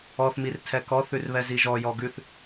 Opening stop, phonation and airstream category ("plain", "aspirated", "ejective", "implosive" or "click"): aspirated